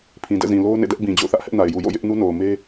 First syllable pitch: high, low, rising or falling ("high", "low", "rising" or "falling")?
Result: low